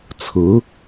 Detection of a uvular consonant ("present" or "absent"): absent